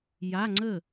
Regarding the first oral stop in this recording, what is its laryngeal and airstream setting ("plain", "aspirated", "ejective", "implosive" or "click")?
click